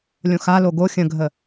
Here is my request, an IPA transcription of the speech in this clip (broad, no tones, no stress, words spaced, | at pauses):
lʲõxalo ɡo xʲə̃ɡʱə